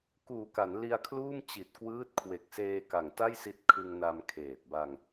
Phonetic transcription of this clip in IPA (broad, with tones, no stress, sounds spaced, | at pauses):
k uː˨˩ k a˩˦ n l i˧ a̯ kʰ l uː˥˩ m t͡ɕ i˨˩ t̚ k w ɯː˦˥ t̚ kʰ w e˨˩ k̚ s eː˧ k a˨˩ ŋ t a˥˩ j s i˦˥ t̚ kʰ ɯ˧ ŋ n a˧ m kʰ eː˨˩ t̚ b a˧ ŋ